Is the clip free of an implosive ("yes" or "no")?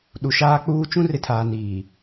no